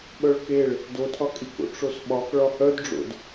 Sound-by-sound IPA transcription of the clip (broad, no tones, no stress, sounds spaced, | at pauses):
ɓ œ ɭ k e ɭ | d o tʰ ɒ kʼ i k o̰ ʈ͡ʂ o s ɓ ɒ k ɭ ɒ h œ d ɖ͡ʐ o̰ d